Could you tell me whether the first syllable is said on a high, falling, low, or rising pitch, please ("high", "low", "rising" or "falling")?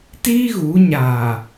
high